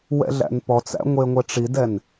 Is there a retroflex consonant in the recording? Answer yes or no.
yes